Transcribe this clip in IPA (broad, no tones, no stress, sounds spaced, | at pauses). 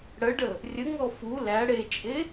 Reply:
ɽ ə ɖ ə | rʲ ə ŋ ɔ f u l æ ɽ e t͡ʃʼ e